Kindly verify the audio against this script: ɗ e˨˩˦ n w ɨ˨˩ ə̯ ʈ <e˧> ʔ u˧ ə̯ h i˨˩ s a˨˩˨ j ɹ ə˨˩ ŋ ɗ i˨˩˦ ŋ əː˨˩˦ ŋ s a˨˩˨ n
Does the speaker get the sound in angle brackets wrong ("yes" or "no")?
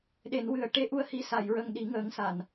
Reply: no